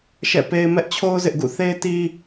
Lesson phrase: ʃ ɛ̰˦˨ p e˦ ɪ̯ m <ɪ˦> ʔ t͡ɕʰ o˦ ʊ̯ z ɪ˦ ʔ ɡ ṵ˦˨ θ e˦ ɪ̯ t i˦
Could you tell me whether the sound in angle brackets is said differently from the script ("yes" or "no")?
yes